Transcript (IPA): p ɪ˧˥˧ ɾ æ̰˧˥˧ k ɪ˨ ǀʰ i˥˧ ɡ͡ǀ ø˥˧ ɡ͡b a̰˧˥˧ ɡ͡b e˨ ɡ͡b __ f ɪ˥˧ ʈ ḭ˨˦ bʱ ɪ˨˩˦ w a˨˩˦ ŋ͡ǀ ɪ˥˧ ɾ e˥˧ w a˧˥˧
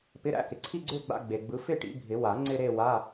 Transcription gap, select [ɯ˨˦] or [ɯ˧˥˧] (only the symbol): ɯ˨˦